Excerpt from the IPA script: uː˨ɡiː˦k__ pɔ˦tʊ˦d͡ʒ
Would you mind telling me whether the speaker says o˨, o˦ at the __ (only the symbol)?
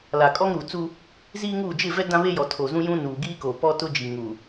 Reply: o˨